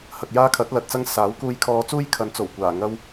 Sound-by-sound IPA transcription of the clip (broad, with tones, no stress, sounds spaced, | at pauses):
h ɐ˨ k̚ j aː˥ kʰ ɐ˨˥ t̚ l ɐ˨ t̚ t͡s ɐ˥ ŋ s aː˨˥ w k uː˧ j kʰ ɔː˧ t͡s uː˥ j kʰ ɐ˨˧ n t͡s o˨˩ w kʷ aː˨˩ ŋ ɐ˥ w